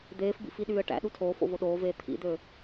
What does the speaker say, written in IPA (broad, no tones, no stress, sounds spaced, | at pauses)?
d̪ eː f b ḭ f i ɗ yː ə̯ ʈ æ̰ ɗ u tʰ oː f o̰ v o ɗ oː v eː t̪ʰ ḭ d̪ ø